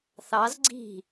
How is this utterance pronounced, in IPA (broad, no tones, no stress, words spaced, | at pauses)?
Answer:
θɑz ɡ͡ǀi̤